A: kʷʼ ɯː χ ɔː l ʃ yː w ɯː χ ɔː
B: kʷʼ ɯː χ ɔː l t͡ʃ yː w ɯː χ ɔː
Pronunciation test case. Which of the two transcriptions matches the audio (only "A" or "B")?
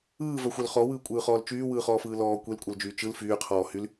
B